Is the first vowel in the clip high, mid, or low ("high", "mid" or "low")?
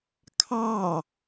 low